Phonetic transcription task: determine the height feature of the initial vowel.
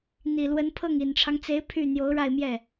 high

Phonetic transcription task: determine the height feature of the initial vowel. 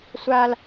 low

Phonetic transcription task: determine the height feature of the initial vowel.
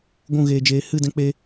high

